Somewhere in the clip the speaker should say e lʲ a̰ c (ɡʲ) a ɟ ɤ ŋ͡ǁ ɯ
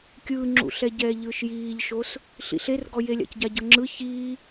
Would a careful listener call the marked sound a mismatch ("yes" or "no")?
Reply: yes